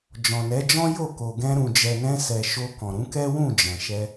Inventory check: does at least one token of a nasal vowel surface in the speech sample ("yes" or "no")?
yes